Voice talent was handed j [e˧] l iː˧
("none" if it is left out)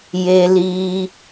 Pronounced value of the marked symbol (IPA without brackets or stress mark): e˧